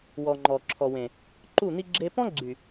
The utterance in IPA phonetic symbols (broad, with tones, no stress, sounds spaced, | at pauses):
w ɔ˨ ŋ͡ǃ ɔ˨ ǁʰ ɔ˨ w ẽ˨ | ǃ u˦˨ n̪ i˦ ɡ͡ǁ e˦ p ɔ̃˦ ɡ͡ǀ y˨